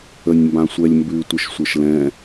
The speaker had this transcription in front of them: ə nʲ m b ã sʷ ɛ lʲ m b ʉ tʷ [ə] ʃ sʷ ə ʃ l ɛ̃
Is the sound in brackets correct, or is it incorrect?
correct